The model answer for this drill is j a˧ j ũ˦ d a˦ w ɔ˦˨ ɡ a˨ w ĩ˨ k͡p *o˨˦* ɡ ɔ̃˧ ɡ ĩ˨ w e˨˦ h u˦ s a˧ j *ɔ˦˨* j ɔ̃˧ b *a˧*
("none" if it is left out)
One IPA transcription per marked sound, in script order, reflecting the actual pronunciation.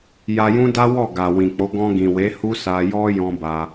o˨˦, ɔ˦, a˧

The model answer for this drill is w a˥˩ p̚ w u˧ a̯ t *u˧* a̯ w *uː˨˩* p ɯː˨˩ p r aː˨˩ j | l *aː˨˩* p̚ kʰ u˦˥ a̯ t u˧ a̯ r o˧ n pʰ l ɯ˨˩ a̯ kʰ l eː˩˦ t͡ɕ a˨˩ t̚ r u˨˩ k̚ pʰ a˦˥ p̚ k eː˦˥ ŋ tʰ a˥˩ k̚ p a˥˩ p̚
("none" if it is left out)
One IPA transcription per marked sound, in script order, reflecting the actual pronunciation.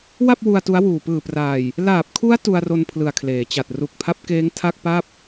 u˦˥, uː˨˩, aː˨˩

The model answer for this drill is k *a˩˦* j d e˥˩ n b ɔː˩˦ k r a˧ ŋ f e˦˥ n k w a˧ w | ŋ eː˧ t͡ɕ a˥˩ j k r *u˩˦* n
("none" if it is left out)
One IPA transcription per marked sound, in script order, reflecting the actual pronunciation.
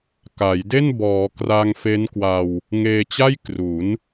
a˩˦, u˩˦

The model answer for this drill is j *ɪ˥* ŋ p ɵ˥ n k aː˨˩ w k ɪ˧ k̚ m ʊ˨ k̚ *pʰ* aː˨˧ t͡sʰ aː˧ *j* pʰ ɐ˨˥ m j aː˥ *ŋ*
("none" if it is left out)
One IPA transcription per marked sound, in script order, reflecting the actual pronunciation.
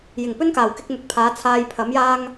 ɪ˨˩, pʰ, j, ŋ

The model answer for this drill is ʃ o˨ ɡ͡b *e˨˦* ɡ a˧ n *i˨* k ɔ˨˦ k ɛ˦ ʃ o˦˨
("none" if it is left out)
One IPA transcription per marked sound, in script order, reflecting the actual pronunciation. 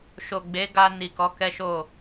e˨˦, i˨

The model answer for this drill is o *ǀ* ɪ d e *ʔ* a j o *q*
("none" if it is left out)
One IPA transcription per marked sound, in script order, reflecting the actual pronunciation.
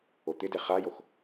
t̪, χ, x

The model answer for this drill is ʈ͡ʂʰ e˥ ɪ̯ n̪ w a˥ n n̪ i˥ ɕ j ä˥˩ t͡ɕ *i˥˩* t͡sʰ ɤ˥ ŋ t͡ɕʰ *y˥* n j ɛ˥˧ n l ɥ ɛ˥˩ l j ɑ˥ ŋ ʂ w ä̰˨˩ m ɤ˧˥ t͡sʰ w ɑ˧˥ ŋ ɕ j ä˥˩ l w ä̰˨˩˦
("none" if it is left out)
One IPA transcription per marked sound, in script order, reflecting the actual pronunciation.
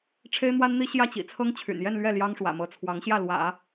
ḭ˨˩, y̰˨˩

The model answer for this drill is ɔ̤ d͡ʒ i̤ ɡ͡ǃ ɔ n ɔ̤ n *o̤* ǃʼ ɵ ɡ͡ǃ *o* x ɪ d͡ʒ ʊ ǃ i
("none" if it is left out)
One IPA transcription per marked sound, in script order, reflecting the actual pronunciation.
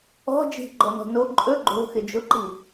o, o̤

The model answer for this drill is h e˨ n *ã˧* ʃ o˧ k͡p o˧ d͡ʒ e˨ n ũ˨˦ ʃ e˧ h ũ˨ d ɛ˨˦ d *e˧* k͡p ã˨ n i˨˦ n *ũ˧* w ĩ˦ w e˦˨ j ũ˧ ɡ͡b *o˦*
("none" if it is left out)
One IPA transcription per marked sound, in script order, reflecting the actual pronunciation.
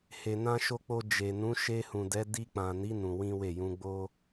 ã˧, i˧, ũ˧, o˦

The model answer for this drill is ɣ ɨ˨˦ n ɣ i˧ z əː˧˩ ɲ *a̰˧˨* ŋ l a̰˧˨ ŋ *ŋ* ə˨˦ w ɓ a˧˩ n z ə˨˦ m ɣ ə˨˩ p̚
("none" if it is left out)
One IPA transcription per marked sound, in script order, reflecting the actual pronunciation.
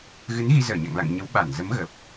a̰˧˨, ɲ

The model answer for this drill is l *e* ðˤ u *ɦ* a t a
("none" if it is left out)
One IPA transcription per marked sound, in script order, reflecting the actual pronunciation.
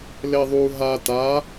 e, ɦ

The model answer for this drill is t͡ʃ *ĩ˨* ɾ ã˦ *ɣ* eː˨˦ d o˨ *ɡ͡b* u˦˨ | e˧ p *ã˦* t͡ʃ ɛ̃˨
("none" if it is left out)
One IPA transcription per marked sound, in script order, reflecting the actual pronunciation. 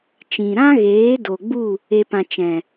ĩ˨, ɣ, ɡ͡b, ã˧

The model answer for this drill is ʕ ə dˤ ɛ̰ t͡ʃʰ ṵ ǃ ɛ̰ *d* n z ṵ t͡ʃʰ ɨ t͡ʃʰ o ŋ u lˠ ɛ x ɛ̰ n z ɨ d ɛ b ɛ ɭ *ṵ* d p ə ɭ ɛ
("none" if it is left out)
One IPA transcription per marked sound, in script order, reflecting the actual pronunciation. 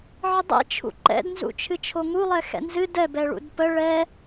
d, ṵ

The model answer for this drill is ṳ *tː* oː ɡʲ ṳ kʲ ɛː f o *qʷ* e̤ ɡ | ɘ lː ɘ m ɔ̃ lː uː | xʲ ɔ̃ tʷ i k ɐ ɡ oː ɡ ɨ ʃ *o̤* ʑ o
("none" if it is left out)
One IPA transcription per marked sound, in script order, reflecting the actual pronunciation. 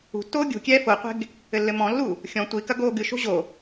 tː, qʷ, o̤

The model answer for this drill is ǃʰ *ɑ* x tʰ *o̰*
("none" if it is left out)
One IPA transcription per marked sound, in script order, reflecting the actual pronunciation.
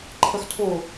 ʌ, o

